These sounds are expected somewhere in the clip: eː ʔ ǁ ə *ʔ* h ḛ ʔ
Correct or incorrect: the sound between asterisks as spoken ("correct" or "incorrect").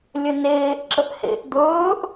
correct